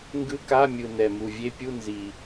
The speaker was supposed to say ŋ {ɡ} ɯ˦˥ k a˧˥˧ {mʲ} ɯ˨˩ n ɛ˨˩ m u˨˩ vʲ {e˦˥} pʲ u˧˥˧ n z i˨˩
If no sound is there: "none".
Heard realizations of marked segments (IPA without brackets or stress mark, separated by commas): ɡ, mʲ, e˦˥